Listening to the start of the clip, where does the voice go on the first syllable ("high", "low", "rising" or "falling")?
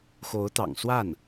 rising